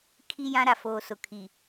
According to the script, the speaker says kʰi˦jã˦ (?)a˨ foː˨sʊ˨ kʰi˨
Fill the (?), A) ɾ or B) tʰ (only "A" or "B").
A